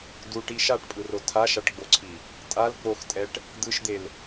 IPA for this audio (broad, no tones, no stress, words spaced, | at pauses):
duʈi ʃaʈpʼɯro tʰaʃaʈɡ͡boǀʰi | tʼal k͡poxtʼɛʈ | d̪ɯʃd̪el